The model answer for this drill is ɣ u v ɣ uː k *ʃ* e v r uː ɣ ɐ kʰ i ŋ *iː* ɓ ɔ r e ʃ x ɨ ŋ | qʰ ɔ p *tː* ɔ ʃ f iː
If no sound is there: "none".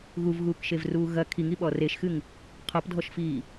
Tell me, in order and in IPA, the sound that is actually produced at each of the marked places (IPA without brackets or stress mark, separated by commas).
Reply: ʃ, i, dʱ